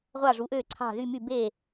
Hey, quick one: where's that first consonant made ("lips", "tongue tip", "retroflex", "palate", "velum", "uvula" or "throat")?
uvula